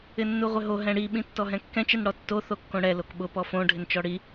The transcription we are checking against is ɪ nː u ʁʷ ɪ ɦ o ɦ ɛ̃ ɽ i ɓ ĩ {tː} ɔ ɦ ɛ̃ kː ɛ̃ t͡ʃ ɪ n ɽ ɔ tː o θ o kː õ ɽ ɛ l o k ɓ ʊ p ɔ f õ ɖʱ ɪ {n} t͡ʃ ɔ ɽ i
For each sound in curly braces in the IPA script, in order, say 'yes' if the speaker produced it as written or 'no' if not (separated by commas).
yes, yes